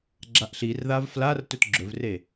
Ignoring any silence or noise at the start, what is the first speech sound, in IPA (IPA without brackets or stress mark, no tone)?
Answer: ɡ͡ǁ